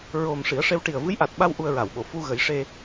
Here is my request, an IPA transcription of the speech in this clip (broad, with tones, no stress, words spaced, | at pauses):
ɹo˨˩m ʂi˨˩˦ə̯ʂe˧w ʈi˨˩ə̯vɨ˧˥jʔa˨˩t̚ɓa˧w ʔu˧ə̯ɹa˨˩˨wɓo˨˩˨ fu˧ ɣə˨˩˦j ʂe˧